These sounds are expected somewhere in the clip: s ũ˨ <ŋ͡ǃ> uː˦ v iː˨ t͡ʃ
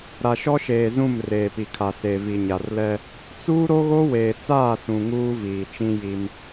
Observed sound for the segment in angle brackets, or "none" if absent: ŋ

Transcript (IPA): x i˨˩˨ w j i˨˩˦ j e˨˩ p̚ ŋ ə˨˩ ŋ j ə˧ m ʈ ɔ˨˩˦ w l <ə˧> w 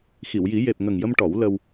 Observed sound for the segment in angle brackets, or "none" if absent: ə˧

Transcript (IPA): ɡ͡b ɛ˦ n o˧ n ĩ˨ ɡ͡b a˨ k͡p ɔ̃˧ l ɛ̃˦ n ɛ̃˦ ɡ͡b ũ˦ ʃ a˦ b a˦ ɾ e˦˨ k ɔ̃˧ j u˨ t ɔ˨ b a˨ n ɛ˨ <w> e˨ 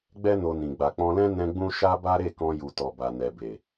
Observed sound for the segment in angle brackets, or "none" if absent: b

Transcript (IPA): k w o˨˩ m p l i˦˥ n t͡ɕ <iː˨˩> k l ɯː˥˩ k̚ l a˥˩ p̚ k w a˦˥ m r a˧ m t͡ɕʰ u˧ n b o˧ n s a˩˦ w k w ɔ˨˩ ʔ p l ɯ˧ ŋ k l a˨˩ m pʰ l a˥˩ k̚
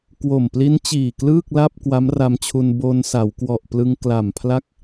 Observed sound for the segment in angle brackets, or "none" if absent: iː˨˩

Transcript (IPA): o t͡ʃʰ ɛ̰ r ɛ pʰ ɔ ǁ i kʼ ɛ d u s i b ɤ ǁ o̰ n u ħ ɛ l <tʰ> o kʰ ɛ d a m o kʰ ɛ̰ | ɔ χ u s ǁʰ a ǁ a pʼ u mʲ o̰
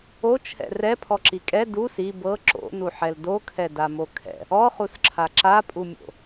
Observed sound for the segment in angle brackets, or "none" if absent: d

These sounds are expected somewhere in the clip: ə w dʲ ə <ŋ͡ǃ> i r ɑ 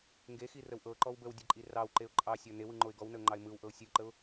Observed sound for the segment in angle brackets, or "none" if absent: ǃʼ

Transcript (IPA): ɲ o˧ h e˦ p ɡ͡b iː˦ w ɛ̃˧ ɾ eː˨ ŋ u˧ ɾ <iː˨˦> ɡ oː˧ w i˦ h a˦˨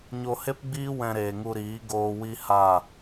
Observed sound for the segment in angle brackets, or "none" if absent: iː˨˦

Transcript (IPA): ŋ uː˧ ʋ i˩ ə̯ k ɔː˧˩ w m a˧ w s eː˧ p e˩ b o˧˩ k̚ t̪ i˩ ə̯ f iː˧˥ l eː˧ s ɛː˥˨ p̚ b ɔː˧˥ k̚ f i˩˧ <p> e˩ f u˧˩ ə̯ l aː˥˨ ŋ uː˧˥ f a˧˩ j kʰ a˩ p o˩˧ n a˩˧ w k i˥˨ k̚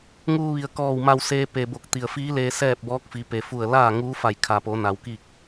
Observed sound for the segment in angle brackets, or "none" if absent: p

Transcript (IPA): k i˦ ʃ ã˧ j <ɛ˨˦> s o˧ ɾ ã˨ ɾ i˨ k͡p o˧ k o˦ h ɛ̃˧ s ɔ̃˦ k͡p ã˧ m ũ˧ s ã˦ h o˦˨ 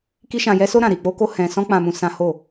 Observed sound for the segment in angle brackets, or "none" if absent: ɛ˦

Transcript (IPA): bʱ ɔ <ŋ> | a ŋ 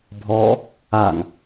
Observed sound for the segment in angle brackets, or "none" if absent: none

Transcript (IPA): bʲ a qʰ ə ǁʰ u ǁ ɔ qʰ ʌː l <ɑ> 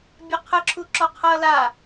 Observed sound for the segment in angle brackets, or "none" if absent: a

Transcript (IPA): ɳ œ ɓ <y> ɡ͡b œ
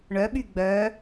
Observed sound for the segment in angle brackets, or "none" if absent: y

